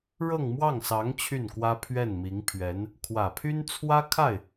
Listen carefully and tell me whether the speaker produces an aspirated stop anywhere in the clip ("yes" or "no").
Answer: yes